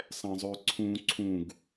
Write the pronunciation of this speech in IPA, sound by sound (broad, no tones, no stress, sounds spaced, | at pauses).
sˤ ɛ̃ zˤ ø ǀʰ ũ ǀʰ ũ ɡ